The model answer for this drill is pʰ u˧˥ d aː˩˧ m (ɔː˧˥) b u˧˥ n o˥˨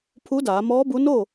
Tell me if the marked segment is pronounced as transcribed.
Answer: yes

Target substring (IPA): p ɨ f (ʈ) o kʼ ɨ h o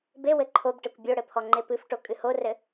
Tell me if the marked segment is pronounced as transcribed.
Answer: yes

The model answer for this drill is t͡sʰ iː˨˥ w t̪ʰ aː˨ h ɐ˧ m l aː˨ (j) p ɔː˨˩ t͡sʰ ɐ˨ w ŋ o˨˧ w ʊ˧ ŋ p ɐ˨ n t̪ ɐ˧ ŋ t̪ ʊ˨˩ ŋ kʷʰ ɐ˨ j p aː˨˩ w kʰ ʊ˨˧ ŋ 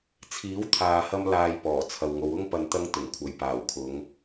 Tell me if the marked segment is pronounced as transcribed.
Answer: yes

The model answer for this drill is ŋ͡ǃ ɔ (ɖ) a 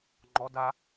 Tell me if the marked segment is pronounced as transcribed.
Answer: no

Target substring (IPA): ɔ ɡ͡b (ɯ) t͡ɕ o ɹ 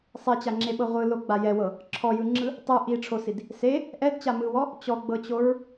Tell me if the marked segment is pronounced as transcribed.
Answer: no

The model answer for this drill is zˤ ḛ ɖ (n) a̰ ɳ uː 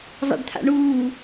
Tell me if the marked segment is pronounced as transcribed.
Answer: no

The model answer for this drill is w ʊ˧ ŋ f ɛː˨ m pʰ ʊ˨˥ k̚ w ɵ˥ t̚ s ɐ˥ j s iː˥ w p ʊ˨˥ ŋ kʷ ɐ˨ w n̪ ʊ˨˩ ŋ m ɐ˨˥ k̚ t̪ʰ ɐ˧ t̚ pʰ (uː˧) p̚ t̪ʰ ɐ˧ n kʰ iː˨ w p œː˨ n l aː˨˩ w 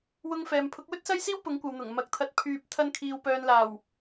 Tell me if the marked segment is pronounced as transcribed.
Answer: no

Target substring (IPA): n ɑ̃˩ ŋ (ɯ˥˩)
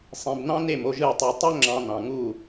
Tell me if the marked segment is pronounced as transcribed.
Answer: no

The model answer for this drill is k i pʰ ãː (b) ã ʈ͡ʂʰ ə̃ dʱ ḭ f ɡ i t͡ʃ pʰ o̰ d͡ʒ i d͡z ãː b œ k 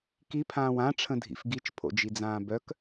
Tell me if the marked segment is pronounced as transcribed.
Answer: no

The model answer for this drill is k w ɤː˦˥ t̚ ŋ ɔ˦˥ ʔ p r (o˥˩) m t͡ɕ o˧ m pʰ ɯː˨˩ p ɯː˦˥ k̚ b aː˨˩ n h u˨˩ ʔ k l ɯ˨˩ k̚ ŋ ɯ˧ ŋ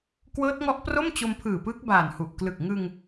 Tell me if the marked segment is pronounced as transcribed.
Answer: yes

